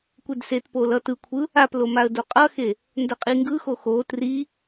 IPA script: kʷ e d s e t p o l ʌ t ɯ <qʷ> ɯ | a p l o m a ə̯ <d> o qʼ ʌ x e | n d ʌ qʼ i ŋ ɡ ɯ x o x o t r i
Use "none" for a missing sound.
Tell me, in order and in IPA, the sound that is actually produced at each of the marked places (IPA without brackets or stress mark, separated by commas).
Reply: kʷʰ, d